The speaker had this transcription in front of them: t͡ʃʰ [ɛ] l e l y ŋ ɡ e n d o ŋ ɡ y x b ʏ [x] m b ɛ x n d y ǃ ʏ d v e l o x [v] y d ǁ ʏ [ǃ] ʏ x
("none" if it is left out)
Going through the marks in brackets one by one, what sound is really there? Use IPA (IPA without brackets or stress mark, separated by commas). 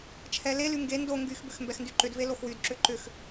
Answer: ɛ, x, w, ǃ